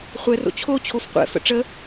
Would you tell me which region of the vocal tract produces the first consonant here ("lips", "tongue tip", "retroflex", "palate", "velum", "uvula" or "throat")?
uvula